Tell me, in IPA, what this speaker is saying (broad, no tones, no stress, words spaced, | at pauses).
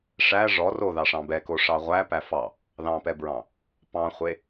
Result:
ʂæ ʐɔ roðɑʂɑ̃ bɛko ʂɑʁʷæ pæfɑ | ðɑ̃pɛbɹɑ̃ | pɑ̃χʷe